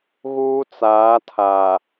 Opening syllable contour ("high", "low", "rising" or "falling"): high